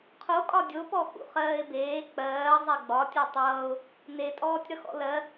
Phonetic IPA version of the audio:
qʰ o kʼ ɒ dʲ o p ɔ x ṵ χ ɜː ɪ̯ b eː k͡p ɜː zˤ ɛ ɡ͡b ɒ tʲ ɔ tˤ ʌː ʊ̯ | n e tʼ ɔː tʲ ɾ ʌ x ɔ̰ l ɜ

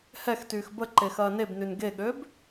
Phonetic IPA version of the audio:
h ɛ x t yː x b ə ǃ e x ɐː n e b n y n ɡ e ɠ ø b

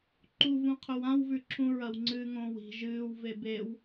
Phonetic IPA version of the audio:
ǃ u v ũ qʰ ɵ w ã w v ʉ ǁʰ ũ ɹ ɐ w ŋ͡ǀ ɨː ŋ õː w i̤ ʒ ɨː w v e b e w

